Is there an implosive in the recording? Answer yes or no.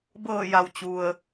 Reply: no